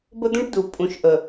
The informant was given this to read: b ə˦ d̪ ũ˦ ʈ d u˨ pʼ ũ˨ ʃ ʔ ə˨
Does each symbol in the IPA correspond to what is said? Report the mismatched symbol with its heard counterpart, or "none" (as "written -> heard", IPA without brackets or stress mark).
none